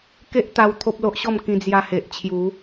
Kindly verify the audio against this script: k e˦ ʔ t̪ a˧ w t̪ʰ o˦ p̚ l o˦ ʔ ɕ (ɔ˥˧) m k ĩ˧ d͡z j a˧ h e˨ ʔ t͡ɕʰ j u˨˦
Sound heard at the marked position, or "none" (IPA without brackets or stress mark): ɔ˥˧